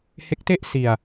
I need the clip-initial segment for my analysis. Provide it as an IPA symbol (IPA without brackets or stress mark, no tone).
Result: h